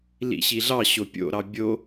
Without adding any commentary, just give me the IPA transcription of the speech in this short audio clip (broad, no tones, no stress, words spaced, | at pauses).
lḭɕiɮɑ ɕopʲo̰ ɾɑbʲo